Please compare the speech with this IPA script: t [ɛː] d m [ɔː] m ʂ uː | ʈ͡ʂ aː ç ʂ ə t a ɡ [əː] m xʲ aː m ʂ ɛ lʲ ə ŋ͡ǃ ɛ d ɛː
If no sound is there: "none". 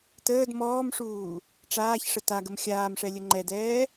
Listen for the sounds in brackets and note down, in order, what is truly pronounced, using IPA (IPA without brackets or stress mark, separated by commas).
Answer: əː, ɔː, ə